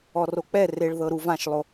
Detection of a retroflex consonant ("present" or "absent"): present